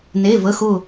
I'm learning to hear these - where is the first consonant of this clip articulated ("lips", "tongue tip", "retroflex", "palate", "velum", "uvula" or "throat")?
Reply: tongue tip